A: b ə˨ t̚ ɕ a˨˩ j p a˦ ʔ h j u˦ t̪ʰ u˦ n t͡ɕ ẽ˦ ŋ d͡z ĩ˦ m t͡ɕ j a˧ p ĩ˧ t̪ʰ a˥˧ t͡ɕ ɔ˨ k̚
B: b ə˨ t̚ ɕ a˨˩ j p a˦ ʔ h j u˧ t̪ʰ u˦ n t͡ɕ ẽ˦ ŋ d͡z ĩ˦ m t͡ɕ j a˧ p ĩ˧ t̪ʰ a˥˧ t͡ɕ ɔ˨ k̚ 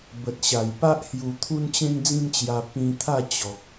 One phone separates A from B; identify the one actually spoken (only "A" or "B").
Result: B